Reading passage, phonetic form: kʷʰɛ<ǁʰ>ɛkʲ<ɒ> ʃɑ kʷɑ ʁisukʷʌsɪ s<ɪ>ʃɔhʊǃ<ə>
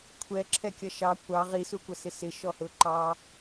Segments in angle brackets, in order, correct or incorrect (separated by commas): correct, incorrect, correct, incorrect